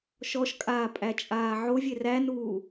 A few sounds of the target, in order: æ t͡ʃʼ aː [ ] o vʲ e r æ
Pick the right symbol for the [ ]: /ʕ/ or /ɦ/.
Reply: ʕ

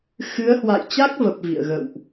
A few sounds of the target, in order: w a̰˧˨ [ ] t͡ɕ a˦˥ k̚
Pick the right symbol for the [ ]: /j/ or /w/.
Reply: j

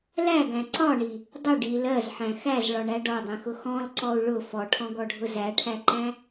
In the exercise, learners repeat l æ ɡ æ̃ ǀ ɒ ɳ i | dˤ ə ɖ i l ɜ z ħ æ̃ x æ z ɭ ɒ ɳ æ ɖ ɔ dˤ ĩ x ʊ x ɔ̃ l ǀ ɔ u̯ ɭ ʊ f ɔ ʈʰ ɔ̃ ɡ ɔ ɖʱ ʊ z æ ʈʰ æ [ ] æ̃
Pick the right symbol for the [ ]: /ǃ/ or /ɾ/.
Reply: ǃ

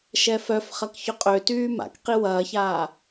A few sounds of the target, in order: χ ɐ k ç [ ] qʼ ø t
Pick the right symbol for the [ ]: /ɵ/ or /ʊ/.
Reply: ʊ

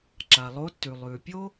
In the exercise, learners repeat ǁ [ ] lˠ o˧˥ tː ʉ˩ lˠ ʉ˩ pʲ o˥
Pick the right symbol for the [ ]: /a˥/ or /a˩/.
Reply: a˩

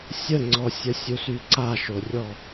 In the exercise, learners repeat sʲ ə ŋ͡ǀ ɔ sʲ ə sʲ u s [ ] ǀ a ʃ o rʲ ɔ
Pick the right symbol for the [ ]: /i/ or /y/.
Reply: y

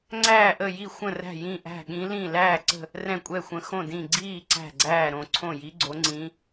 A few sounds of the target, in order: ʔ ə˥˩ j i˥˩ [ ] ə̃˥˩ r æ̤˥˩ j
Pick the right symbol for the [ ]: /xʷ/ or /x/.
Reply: xʷ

